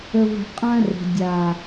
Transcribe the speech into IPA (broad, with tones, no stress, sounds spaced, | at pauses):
ə˦ v ə̤˦ qʼ ã˦ r ə̤˨ dʲ a˨